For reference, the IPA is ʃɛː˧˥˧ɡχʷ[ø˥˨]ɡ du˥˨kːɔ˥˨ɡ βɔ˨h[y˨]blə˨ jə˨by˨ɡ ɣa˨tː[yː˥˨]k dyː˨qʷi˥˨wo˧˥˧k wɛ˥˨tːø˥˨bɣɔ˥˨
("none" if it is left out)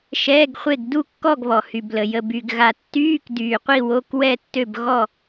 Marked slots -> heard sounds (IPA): e˥˨, y˨, yː˧˥˧

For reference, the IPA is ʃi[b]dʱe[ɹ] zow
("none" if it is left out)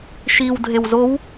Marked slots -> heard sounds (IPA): w, w

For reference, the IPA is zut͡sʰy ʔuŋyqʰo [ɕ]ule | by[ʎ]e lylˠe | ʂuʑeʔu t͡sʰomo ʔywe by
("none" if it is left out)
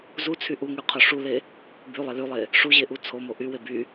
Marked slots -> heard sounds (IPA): ʂ, lˠ

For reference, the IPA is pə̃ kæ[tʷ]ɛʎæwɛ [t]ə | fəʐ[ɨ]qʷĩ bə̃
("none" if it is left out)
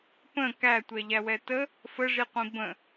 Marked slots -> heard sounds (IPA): tʷ, t, i

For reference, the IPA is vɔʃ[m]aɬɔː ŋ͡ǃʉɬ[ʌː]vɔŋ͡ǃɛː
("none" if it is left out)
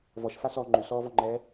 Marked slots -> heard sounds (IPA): f, ɔː

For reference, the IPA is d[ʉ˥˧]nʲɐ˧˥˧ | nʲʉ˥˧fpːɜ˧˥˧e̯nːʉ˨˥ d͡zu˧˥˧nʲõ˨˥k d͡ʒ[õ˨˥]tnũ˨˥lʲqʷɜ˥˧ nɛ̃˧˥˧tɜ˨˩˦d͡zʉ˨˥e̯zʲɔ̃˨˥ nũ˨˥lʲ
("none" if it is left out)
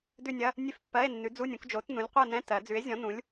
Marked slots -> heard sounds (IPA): ʉ˥˧, o˨˥

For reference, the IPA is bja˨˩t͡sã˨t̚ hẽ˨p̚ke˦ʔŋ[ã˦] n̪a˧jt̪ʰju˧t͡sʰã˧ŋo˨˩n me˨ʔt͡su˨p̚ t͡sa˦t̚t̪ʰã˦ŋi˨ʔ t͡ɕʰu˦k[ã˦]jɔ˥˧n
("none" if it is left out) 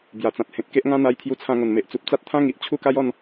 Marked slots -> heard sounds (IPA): ã˦, a˦

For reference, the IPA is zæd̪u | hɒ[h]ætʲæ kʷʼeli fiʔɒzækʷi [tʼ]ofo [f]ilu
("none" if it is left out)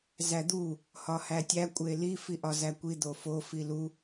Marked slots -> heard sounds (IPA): h, d̪, f

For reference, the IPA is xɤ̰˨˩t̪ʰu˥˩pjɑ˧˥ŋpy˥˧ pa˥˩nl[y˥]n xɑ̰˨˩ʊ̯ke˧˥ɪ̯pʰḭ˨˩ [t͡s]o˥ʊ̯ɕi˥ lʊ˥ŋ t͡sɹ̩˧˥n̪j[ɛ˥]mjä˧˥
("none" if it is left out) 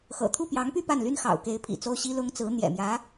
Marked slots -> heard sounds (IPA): y˥, t͡s, ɛ̰˨˩

